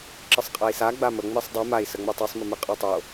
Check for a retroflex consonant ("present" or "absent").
absent